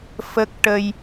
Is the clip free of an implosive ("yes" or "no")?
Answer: yes